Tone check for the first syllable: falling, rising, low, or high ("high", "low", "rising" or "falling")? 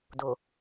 low